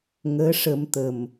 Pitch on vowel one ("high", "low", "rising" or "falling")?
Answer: rising